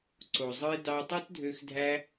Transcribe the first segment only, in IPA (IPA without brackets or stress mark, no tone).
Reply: ǀ